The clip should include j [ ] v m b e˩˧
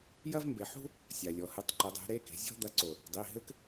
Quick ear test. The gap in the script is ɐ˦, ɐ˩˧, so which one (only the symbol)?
ɐ˦